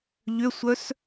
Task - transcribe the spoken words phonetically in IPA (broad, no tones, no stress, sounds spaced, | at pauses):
ʎ ʏ sʷ œ s